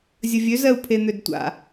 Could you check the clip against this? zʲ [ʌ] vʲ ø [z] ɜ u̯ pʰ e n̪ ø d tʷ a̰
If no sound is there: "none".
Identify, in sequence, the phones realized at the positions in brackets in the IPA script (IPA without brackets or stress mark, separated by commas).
ə, z